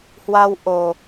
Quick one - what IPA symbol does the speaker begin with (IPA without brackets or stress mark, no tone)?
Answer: h